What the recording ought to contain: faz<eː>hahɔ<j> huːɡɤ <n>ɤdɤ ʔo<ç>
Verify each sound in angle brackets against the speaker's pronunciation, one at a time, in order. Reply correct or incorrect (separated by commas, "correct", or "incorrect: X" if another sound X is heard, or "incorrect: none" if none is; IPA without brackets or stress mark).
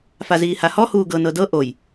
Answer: incorrect: iː, incorrect: none, correct, incorrect: j